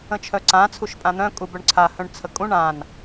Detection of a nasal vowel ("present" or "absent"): present